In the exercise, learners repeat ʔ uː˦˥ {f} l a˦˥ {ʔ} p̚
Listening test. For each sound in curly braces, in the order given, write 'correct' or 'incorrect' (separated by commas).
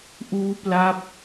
incorrect, incorrect